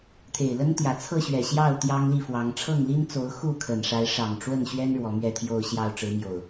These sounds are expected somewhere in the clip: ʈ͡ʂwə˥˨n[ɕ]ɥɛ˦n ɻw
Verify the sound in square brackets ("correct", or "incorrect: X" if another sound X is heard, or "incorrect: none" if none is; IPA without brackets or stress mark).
correct